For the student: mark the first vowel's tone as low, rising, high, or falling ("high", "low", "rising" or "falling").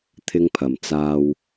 high